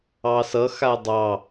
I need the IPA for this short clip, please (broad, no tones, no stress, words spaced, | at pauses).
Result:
ɑsʌ xadˤɑ